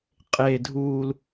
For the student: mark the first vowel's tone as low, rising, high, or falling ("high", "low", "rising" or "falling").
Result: low